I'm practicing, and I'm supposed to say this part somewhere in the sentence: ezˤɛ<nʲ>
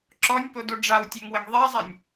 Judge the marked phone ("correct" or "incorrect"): correct